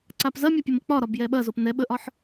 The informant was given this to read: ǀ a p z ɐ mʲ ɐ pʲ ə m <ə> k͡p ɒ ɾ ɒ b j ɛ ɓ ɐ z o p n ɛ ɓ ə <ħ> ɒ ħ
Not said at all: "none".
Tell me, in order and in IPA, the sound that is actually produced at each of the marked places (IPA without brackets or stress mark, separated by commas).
ə, ʔ